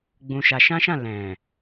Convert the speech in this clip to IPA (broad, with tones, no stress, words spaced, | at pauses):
ɡ͡bũ˧ʃa˧ ʃã˦ʃã˦˨ lɛ̃˨